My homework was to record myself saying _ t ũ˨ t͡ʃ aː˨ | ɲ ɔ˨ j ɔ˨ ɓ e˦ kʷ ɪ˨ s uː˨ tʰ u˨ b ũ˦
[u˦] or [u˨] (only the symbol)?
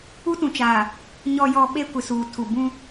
u˦